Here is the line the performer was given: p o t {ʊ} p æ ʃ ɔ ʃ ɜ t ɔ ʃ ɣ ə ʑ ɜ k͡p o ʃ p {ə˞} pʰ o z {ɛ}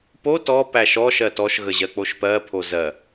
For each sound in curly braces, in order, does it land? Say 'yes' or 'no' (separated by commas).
no, no, no